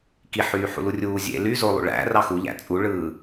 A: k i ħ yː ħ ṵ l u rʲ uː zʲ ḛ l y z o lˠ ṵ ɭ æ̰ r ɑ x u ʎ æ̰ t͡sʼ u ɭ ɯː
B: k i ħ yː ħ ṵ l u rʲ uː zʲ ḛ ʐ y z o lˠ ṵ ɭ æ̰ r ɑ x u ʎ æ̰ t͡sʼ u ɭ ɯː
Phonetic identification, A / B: A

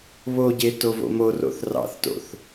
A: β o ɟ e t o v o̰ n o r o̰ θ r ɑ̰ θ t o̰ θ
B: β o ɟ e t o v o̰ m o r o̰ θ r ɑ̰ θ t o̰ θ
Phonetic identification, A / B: B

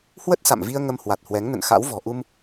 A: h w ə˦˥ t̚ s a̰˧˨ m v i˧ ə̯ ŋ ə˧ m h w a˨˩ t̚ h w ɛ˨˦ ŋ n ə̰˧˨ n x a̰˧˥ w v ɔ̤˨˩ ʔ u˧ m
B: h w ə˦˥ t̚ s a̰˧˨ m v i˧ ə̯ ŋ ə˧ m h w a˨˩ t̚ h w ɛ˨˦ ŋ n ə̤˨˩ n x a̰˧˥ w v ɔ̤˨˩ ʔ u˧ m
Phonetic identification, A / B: A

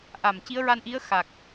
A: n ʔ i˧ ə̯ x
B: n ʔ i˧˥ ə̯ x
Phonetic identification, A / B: B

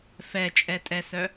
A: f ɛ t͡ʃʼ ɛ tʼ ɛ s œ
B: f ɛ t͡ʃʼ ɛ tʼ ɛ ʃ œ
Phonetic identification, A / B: A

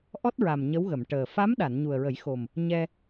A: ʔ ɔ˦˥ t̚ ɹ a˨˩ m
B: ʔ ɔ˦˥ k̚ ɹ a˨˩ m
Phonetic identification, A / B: A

